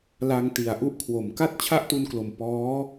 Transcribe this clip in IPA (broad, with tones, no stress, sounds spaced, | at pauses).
l a˧ ŋ t i˨˩ a̯ ʔ u˦˥ ʔ kʰ w o˨˩ m k a˥˩ t̚ t͡ɕʰ a˥˩ ʔ t u˧ n k l o˨˩ m p ɔː˦˥